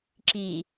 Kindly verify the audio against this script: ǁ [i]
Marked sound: correct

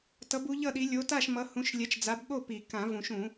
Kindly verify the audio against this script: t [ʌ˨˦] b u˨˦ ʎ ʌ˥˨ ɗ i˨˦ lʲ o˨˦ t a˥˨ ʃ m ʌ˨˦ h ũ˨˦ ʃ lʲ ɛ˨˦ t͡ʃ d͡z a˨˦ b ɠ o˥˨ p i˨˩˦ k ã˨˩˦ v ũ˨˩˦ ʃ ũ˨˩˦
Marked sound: correct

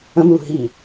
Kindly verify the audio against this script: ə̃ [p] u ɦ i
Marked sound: incorrect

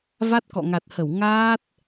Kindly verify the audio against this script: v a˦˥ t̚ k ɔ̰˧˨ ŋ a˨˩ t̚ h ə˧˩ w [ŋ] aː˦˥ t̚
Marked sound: correct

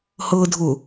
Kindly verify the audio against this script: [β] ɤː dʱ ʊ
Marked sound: incorrect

